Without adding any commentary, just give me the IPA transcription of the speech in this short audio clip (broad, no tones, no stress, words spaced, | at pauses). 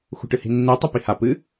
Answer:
xṳʈɨhi̤nːi tˤɵpiha pɨ